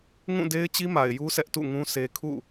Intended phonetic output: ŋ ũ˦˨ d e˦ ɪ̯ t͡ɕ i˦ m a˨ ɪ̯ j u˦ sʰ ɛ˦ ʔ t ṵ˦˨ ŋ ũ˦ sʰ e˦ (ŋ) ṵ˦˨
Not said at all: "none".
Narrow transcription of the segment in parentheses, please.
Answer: kʰ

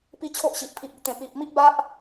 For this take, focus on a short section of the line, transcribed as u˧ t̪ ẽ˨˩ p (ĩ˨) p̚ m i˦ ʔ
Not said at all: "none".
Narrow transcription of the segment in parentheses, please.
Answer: i˨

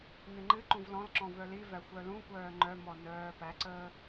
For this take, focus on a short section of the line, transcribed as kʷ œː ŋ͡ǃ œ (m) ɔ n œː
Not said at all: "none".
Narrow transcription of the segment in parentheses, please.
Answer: m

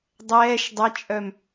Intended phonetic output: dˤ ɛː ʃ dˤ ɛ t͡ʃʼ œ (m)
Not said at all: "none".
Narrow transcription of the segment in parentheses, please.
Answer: m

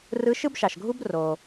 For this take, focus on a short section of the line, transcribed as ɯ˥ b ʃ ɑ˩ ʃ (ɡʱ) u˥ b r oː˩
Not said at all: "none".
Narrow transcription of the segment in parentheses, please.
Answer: ɡʱ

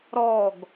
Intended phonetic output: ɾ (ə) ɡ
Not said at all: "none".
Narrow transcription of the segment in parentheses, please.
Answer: ɔ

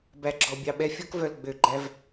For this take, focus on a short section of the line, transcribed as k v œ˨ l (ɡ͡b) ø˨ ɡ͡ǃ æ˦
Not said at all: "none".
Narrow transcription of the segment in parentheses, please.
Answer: ɡ͡b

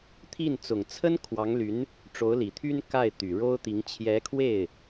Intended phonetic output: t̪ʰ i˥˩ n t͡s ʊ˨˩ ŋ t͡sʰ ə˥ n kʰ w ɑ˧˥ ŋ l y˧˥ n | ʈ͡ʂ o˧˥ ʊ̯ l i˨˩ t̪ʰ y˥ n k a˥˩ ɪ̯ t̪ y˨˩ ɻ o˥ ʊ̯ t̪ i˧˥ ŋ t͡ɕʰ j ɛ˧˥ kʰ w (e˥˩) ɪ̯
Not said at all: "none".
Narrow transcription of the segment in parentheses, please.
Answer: e˥˩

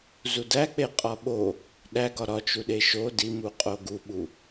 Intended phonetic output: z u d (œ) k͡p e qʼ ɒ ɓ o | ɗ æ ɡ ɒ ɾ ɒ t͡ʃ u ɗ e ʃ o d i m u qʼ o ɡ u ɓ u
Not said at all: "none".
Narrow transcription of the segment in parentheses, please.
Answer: æ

